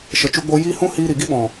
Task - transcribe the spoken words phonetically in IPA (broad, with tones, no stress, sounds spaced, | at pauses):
ʃ ə˨ t͡ʃ u˧ ɡ͡b o˧ j iː˦ h ũ˦ h iː˧ ɾ i˨ ɡ i˦ ɓ ɔ̃˨